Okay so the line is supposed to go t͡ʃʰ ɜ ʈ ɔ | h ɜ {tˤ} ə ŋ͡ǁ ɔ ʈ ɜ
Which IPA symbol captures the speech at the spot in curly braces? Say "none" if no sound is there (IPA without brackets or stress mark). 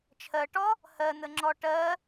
n̪